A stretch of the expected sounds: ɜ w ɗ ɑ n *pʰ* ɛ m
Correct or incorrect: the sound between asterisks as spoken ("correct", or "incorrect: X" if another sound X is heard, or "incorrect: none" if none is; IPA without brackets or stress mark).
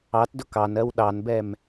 incorrect: b